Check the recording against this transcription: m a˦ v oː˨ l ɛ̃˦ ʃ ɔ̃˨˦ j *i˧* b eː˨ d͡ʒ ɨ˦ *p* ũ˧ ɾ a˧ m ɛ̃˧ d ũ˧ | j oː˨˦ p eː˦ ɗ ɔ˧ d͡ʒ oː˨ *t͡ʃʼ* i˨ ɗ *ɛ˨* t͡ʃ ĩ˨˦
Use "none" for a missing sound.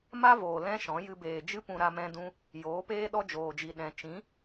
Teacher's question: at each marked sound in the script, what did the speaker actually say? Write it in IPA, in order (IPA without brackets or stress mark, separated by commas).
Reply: ɨ˧, p, d͡ʒ, ɛ̃˨